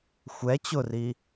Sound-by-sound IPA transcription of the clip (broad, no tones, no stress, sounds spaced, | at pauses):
xʷ ɛ t͡ɕ ʊ r i